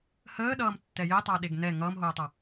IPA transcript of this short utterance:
h əː ɗ ʌː m tː ɛ j e tˤ a ɗ e ɡ n ɛ ŋ ʌː m ɦ oː tˤ ʌ

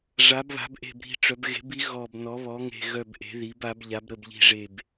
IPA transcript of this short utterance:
ʐ a˨˥ b β a̤˨˥ b ʔ e̤˦˨ b ɾ i̤˦˨ ʈ͡ʂ œ˨˥ b ɣ e̤˨˥ b i˨˥ ɣ ɔ˦˨ b n ɔ˨˥ β ɔ˨˥ ŋ e̤˦˨ ɣ œ˦˨ b ʔ e̤˨˥ ð i˨˥ b a˨˥ b ʎ a˨˥ b ɾ ə˦˨ b ʎ i̤˦˨ ʐ e˦˨ b

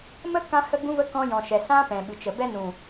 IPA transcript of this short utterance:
m ə˦ k ã˧ h ə˦ ɡ͡b ũ˦ v ə˦ k ɔ̃˧ j ɔ̃˨ ʃ ɛ˨ s ã˦ p ɛ̃˨ ɓ ɨ˨ t͡ʃ ə˨ b ɛ˧ n ũ˨

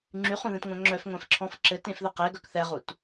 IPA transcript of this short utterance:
ŋ͡ǁ y χ ũ ð ɛ̃ t ŋʷ œ̃ ŋ͡ǁ œ f ŋʷ ɛ̃ f ǁʰ ɔ̃ f ǁ ɘ t ẽ f ð ɛ q e ɡ œ k θ ɛ ʁ u t

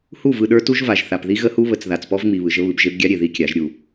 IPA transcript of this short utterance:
h u˦˨ v ɯ˨ ɗ ə˞˦ t u˦ ʒ v a˨ ʒ θ a˨ p ð i˦ ɣ ə˦ h u˦ β ə˨ t͡s ð a˨ t͡s p ɔ˦ v ŋ͡m i˨ β ɯ˨ ʒ ə˦ β ɯ˨ b ʒ e˦ b ɡʲ a˦ ɾʲ e˨ ð i˦ kʲ a˨˦ ʒ ɾʲ u˨

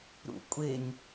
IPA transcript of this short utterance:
ɾ ṵ kʷʼ ɪ nʲ

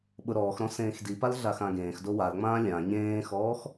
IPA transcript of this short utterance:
ɓ ʊ ɾ ɔː x ɾ ɔ̃ s ẽː x d i p a l ɮ a x ã ɡ ẽː x d o w a l ŋ͡m ãː lʲ ã ɲ ẽː x ɔː x

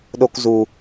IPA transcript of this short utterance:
ɗ o˧ k z u˨

